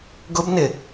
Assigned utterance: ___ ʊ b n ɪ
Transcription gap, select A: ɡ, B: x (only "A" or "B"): A